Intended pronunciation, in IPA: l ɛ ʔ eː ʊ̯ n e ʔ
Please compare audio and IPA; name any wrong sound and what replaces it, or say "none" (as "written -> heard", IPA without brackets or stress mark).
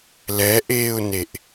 none